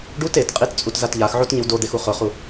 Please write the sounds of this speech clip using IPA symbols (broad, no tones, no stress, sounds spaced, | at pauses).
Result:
ɖ u t e t qʼ i t t͡sʼ u t z a t ʎ a x ʕ o t ɲ ɪ w d o d̪ e x u χ ʊ χ u